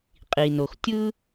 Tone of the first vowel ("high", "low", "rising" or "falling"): low